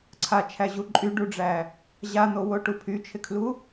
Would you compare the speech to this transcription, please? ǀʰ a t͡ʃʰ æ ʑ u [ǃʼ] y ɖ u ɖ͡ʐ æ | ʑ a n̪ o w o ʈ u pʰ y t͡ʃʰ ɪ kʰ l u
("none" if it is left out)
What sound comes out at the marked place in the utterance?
ǃʼ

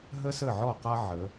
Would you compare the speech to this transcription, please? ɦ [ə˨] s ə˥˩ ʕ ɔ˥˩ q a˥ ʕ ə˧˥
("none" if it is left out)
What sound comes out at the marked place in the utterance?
ə˥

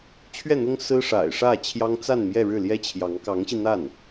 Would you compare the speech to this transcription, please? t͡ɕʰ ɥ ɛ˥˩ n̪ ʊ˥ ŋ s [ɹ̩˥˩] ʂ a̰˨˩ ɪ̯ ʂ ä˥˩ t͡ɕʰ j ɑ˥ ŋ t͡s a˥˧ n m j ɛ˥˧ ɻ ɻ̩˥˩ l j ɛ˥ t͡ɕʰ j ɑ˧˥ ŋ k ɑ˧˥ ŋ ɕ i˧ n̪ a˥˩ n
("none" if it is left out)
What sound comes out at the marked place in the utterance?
ɹ̩˥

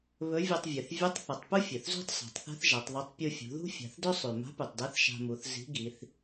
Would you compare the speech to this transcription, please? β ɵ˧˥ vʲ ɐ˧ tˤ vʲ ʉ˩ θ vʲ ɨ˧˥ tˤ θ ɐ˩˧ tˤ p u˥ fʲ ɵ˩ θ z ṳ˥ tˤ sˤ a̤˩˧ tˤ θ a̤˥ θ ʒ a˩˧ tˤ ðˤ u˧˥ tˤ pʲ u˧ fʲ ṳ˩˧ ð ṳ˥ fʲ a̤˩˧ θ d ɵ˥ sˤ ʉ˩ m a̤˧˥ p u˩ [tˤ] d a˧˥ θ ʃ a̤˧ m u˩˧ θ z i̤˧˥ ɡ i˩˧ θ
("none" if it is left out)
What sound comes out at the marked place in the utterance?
tˤ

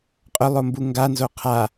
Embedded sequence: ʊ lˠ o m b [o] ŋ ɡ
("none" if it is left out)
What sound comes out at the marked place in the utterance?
u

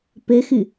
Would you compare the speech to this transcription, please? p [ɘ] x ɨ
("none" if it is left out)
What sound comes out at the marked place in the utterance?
ɘ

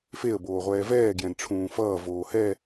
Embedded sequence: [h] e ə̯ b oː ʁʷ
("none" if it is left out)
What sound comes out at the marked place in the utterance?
f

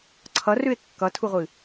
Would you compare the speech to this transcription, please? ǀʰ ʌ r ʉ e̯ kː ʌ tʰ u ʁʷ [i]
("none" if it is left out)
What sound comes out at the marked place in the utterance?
ɨ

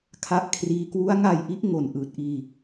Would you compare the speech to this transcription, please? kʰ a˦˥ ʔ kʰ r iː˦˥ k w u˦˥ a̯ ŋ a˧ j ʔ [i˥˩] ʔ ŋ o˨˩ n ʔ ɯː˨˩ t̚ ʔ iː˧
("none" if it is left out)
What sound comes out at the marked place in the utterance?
i˦˥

